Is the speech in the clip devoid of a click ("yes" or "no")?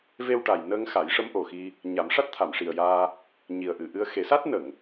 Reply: yes